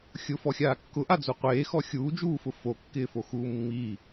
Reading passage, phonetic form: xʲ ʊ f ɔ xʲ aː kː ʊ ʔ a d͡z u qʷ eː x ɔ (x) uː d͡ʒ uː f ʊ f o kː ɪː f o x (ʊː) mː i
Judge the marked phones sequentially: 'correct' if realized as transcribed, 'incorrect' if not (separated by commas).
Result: incorrect, incorrect